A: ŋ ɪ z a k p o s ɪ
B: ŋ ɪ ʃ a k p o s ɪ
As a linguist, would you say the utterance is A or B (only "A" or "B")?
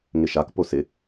B